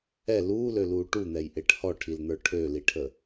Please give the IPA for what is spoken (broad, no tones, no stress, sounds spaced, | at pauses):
ɛ l uː l ø l uː ʈ u n̪ ɛ j ʔ e ʈ h ɔ ʈʰ i l n̪ ə˞ ʈʰ ø l i ʈʰ ə